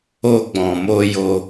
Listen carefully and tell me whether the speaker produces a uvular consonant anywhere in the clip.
no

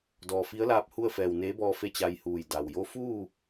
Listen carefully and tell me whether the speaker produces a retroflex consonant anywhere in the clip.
no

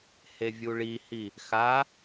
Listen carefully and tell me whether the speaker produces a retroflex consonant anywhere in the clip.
yes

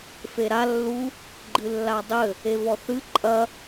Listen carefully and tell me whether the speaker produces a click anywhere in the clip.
yes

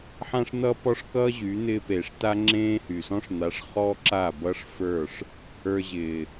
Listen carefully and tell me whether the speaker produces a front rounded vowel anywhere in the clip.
yes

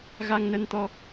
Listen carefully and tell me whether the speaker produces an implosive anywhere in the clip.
no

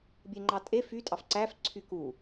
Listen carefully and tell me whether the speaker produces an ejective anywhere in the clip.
yes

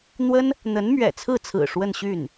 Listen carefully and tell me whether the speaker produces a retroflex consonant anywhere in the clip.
yes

